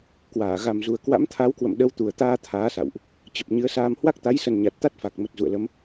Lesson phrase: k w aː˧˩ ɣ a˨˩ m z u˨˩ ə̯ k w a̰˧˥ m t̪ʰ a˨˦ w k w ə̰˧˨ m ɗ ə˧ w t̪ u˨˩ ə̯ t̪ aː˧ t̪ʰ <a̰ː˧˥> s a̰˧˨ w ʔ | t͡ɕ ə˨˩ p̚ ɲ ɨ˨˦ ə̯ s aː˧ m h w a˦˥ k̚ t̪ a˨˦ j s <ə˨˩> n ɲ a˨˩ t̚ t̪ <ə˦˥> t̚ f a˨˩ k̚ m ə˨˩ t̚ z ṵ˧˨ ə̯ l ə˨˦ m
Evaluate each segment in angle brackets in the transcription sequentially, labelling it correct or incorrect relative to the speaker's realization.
incorrect, correct, incorrect

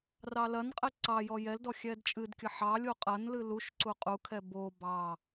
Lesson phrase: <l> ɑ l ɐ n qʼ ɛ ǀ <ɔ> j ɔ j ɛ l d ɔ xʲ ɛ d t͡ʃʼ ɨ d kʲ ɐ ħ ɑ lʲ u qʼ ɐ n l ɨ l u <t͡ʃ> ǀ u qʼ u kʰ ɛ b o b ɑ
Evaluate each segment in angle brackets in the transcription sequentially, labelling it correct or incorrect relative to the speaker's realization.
incorrect, incorrect, incorrect

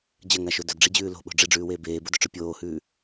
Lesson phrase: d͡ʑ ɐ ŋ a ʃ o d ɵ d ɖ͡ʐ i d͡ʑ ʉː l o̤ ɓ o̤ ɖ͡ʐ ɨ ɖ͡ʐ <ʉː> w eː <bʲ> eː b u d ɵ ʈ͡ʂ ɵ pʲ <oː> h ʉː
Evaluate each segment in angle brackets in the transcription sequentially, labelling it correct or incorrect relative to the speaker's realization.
correct, incorrect, correct

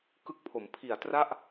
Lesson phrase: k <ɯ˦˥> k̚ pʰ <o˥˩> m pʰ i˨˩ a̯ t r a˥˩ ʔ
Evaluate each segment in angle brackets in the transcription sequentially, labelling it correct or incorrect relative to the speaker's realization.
incorrect, incorrect

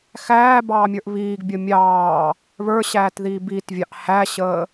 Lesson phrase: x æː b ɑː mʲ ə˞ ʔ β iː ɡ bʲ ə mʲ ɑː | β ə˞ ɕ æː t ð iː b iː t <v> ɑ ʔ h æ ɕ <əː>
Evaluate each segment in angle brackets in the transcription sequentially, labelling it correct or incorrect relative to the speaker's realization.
incorrect, correct

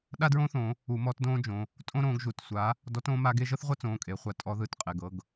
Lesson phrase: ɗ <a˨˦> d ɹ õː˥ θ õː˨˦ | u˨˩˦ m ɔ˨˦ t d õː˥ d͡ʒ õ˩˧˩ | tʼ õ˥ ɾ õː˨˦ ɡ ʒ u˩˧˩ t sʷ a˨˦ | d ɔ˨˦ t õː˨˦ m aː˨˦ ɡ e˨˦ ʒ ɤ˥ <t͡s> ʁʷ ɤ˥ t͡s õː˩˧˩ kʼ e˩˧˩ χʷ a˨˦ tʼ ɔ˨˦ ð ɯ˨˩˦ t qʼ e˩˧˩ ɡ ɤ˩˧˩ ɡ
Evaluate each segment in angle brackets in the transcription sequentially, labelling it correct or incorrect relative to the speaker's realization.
incorrect, incorrect

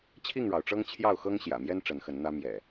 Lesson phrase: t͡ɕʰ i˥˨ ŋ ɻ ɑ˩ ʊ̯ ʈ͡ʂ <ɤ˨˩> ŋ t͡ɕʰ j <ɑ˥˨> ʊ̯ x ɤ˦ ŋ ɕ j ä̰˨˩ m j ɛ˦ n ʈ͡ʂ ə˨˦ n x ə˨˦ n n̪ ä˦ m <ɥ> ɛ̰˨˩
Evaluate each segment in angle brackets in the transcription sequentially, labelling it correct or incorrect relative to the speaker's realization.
incorrect, correct, incorrect

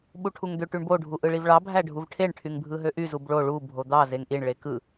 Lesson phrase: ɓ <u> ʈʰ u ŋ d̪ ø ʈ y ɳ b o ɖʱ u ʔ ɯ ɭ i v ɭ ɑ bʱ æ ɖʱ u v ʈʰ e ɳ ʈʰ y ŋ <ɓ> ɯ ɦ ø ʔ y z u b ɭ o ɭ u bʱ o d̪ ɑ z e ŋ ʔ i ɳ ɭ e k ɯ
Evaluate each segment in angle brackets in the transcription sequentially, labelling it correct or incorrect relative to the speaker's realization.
correct, incorrect

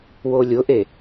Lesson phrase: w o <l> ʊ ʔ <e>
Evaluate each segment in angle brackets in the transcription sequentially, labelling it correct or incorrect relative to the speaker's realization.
incorrect, correct

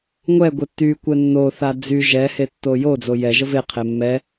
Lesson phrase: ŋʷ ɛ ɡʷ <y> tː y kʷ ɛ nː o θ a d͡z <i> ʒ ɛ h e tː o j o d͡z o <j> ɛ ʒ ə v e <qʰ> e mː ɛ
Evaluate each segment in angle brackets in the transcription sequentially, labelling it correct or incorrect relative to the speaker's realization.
incorrect, incorrect, correct, correct

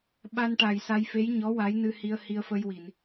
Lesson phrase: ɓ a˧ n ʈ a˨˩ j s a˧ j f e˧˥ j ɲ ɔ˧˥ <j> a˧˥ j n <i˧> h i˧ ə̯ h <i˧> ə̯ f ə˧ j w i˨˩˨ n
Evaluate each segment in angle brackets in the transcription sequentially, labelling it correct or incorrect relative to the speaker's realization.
incorrect, incorrect, correct

